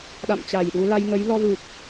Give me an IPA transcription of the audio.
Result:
ɗ a̰˧˨ m t͡ɕ a˧˩ j ɗ u˨˦ l a˧ j ŋ ə˨˦ j l ɔ˧ v ɨ˨˩ k̚

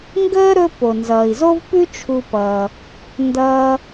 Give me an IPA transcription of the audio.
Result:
ŋ ɡ əː˥ ɾ ɵ˥ p o˩ n z ʌː˩ i̯ z o˥ v p ʉ˥ t͡ʃʰ u˧ p ʌː˩ | n d ʌː˧

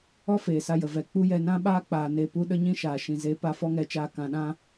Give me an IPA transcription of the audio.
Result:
ɔ˦ f eː˨ s a˧ j ə˨ v ɛ˨ k͡p u˦ j ɛ˧ n ã˦ ɓ aː˦ k͡p aː˨ n e˧ p u˦ ɗ ə˦ ɲ ĩ˦ ʃ aː˨ ʃ ĩ˨ z e˨˦ p a˧ f ɔ˦ ŋ ɛ˧ t͡ʃ aː˧ k ã˨ ɗ ã˧

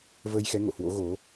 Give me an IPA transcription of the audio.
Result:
v əː˧ j x ɛ˨˦ ŋ o̰˧˨ h w o̰˧˥ ɣ o˨˦

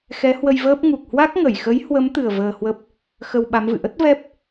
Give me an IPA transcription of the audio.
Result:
x ɛ˨˦ h w ə˧ j v əː˦˥ p̚ ŋ u˨˩ k̚ h w a˦˥ k̚ ŋ ə˧˩ j x ə˨˦ j h w ə˨˦ m t̪ ɨ˨˩ ə̯ v əː˧ h w ə˦˥ p̚ | x ə˧ w ɓ a˨˦ m v ɨ̰˧˨ ʔ ə˦˥ t̚ v ɛ˦˥ p̚

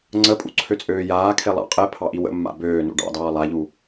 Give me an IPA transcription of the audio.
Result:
ŋ͡ǀ ə pʼ ṵ ǀʰ ø t͡sʼ øː j aː kʰ e lˠ ɑ̰ qʼ ɛ pʰ ɑ ʔ i w ə̰ mː a̰ b øː n ṵ ɖ ɑ̰ d ɑː lˠ a ʎ u

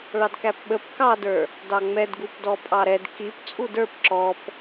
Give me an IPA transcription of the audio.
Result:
ɭ ɑ d k æ p ɓ ə p k ɑ d ə˞ | d ɑ ŋ͡m ɛ d ɡ u p d ɔ pʼ ɑ ɾ ɛ d k i p t͡sʼ u d ə˞ p ǁ ɔ p

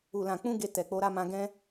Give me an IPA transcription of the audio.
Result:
u˨ l ã˨ k͡p ũ˧ ɡ e˧ t ɛ˨ k͡p o˧ ɾ a˧ m ã˧ ɡ ɛ̃˦

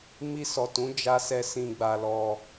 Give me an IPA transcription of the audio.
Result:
m i˧ s ɔ˨ t ũ˨˦ d͡ʒ a˦ s ɛ˦ s ĩ˧ ɡ͡b a˧ l ɔ˧

